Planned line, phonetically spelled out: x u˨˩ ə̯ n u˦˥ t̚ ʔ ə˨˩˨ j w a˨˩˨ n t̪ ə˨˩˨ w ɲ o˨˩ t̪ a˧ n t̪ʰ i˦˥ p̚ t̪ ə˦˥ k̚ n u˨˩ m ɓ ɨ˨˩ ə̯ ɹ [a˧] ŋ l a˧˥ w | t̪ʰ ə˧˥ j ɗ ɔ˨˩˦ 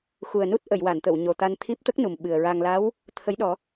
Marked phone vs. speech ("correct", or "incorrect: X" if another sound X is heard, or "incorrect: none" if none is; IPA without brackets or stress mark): correct